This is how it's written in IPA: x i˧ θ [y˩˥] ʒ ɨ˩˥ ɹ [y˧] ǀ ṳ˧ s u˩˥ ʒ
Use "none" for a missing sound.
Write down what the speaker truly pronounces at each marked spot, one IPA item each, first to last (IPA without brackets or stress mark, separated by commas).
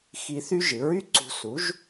y˥, y˥